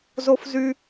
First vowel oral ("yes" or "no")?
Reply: yes